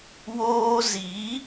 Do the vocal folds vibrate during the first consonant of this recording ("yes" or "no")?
yes